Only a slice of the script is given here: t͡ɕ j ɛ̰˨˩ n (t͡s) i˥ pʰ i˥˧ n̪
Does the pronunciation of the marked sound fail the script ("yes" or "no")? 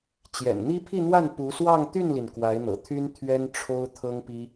yes